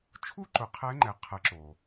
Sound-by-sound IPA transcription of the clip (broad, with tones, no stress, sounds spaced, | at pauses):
t͡ʃʰ u˥ ǃ ʊ˩˧ qʰ ɛ˧˥ ŋ͡ǃ ɛ˩˧ qʰ ə˩˧ ǁ o˩